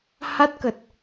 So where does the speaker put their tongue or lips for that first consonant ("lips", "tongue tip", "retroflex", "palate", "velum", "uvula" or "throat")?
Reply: throat